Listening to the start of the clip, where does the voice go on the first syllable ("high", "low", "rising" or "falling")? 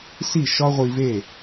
falling